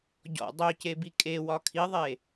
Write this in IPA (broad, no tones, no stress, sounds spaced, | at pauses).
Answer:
ɟ ɔ̰ dˤ ø c e b i kʼ e w ɒ kʰ i ðˤ e